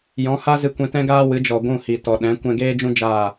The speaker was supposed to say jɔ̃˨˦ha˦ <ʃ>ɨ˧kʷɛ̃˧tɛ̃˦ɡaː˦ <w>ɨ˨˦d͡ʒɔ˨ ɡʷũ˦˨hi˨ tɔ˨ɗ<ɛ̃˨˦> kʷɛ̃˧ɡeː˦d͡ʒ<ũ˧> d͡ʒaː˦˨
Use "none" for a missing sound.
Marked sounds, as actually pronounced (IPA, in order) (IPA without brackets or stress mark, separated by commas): z, w, ɛ̃˨˦, ũ˦